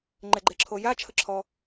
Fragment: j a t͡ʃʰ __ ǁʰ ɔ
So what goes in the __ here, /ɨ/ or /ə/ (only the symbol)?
ə